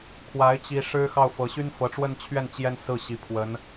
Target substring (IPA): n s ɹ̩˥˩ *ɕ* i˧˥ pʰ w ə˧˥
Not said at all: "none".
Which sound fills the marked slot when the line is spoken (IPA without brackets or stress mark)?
ɕ